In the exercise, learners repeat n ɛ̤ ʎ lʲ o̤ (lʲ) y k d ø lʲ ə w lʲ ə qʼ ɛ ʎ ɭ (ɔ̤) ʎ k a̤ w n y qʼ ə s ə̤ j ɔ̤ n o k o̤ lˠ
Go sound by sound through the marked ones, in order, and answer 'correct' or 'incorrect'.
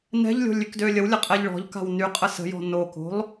correct, correct

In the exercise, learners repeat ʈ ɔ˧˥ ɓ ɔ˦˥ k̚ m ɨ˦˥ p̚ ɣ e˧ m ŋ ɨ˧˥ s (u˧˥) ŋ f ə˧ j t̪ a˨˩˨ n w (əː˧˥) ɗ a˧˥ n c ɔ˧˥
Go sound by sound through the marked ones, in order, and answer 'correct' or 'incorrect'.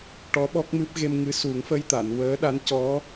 incorrect: u˨˩˦, correct

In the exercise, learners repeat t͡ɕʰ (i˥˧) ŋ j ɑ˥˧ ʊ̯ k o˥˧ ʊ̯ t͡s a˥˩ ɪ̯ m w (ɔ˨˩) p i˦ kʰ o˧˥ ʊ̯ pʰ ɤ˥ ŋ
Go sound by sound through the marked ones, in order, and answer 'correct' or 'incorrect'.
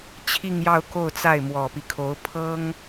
correct, correct

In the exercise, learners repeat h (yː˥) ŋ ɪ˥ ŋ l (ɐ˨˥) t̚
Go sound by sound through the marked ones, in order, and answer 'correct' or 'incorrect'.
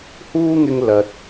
incorrect: uː˥, incorrect: ɐ˧

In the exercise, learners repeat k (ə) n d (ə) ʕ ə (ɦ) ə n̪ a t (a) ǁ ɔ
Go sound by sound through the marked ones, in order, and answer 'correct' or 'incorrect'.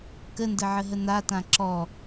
correct, correct, correct, incorrect: ã

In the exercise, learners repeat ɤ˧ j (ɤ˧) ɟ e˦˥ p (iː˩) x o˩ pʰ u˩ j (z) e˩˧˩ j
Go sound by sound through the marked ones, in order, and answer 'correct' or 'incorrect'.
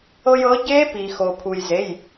incorrect: ɤ˨˥, incorrect: i˩, correct

